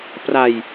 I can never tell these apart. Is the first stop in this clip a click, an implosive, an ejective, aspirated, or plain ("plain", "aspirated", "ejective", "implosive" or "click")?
plain